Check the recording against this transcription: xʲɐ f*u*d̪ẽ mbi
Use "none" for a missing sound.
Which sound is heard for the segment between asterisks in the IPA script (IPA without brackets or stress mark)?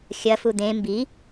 u